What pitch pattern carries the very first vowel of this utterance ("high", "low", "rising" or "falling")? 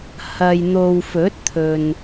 low